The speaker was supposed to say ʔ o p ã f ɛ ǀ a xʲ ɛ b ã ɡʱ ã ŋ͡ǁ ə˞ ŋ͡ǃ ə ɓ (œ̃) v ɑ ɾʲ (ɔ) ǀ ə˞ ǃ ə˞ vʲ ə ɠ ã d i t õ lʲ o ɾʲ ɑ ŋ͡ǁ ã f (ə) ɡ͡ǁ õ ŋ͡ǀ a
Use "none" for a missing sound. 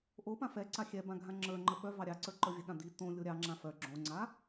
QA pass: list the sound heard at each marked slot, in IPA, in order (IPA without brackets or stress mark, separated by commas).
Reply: œ, ɑ, œ